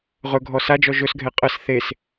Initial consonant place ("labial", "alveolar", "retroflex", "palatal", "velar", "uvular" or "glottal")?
uvular